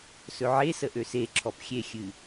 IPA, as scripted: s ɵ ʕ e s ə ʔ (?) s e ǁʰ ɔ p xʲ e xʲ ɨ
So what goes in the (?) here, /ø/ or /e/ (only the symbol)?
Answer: ø